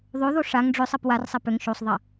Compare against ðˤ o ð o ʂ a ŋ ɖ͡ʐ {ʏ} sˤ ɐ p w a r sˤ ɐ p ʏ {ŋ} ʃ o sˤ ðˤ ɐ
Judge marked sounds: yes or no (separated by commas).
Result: yes, yes